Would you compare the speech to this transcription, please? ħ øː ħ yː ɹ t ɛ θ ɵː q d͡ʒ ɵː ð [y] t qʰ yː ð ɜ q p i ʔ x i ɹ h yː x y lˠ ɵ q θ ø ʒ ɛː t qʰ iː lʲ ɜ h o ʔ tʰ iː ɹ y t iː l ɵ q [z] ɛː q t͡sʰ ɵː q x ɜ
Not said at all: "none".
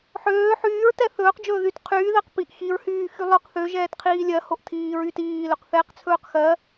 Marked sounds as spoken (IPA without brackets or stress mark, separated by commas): y, θ